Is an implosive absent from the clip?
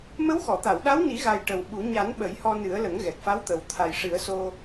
no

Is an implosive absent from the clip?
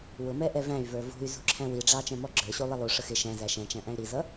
yes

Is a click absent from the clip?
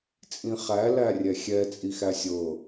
yes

